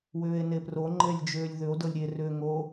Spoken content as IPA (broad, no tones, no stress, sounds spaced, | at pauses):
w ʏː e̯ n e p r o ŋ͡ǃ e lʲ d͡ʒ ʏː lʲ ð ʏ o̯ d ɤ lʲ ɾʲ e r ʏː ŋ o